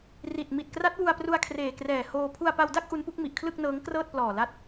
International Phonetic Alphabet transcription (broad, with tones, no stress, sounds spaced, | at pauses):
r i˨˩ t̚ m i˨˩ t̚ k r a˦˥ t̚ w u˧ a̯ p r u˧ a̯ kʰ r eː˨˩ k r ɛː˨˩ h oː˧ pʰ u˧ a̯ p a˧ w d a˥˩ k̚ ʔ u˦˥ n p u˦˥ k̚ m i˨˩ ʔ kʰ l ɯ˥˩ k̚ n ɤː˦˥ ŋ k r ɤː˥˩ t̚ p l ɔː˨˩ l a˦˥ t̚